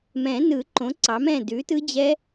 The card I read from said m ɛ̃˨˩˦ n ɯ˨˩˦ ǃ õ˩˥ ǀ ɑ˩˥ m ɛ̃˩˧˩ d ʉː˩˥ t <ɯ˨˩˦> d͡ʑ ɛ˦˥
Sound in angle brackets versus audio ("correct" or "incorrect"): incorrect